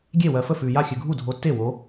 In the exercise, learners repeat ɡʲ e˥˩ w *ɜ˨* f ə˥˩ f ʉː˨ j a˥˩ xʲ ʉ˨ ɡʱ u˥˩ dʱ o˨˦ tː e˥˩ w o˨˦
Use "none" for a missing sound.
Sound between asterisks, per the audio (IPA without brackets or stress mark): ɜ˨